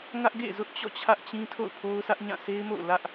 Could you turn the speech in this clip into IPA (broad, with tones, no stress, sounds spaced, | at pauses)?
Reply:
ŋ ä˦ ʔ ɡ ḛ˦˨ z ʊ˦ ʔ t͡ɕ ɔ̰˦˨ t͡ɕʰ ä˦ ʔ t͡ɕ ĩ˦ tʰ o̰˦˨ ʊ̯ pʰ o˦ ʊ̯ s ä˦ ʔ ɲ ã˦˨ s e˦ ɪ̯ m o̰˦˨ ʊ̯ l ä˦ ʔ